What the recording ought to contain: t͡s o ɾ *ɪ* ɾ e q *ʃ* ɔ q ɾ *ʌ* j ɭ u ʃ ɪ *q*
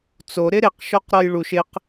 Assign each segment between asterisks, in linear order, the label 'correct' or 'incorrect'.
correct, correct, incorrect: ɔ, correct

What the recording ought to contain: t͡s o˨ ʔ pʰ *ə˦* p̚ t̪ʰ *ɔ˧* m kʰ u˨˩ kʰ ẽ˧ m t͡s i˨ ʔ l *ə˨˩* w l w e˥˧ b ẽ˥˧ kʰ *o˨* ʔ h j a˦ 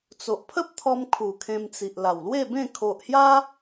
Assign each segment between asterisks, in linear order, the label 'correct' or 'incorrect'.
correct, correct, incorrect: a˨˩, correct

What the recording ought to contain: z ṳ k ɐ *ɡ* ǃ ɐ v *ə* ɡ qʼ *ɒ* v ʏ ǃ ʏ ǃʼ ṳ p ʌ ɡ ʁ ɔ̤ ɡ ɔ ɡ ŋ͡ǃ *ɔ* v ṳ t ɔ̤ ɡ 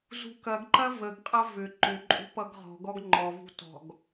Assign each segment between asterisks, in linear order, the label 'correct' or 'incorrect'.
correct, correct, incorrect: ʌ, correct

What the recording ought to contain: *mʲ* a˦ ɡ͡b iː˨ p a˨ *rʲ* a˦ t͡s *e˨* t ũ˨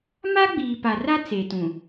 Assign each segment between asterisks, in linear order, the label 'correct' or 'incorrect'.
incorrect: m, incorrect: r, correct

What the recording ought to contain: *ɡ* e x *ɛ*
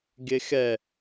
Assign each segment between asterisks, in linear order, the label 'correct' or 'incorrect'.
correct, correct

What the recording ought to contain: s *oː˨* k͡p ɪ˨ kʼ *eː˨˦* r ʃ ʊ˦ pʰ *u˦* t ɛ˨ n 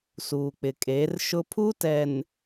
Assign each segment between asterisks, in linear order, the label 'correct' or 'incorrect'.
incorrect: uː˨, correct, correct

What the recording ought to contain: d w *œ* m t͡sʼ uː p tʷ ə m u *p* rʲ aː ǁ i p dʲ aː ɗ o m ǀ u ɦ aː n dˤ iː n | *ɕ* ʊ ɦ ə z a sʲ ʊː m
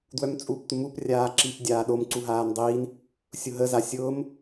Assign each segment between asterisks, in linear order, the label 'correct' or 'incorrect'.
correct, correct, incorrect: sʲ

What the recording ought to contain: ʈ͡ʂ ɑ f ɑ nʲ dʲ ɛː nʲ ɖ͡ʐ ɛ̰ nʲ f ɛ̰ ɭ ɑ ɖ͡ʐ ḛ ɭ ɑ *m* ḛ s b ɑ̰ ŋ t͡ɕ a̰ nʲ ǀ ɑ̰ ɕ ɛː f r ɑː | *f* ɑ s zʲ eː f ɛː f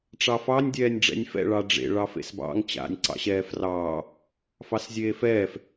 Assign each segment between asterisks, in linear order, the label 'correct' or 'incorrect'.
incorrect: f, correct

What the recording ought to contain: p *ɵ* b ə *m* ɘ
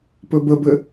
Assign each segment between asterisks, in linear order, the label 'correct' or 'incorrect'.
correct, incorrect: b

